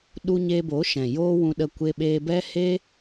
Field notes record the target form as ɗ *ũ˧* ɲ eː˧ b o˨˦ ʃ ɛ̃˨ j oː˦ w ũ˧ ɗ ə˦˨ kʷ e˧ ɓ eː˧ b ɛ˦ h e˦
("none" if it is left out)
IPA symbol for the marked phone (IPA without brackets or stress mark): u˧